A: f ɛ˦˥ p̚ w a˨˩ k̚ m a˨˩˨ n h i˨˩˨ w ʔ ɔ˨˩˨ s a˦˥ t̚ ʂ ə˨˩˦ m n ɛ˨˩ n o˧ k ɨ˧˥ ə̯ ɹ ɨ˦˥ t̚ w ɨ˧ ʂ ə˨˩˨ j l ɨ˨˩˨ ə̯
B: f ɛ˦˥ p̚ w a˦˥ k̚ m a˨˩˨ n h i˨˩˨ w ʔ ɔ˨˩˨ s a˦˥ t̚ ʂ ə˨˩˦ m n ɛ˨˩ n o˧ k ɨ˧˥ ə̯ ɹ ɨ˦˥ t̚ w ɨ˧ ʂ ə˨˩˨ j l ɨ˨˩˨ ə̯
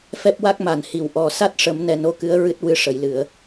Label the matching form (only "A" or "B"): B